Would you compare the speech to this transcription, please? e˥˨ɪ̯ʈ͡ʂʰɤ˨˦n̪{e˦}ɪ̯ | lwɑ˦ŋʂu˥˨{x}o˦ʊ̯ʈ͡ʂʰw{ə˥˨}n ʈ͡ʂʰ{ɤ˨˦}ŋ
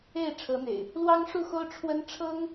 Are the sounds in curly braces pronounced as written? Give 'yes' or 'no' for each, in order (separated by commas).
no, yes, no, no